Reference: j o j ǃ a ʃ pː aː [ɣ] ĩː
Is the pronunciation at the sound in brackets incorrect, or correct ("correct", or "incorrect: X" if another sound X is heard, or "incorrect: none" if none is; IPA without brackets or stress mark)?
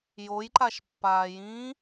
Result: incorrect: j